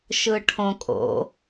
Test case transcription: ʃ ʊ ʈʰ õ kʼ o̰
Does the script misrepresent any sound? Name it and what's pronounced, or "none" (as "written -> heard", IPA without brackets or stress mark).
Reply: ʊ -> ɯ